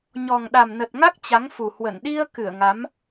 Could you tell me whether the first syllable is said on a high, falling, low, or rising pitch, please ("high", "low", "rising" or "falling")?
low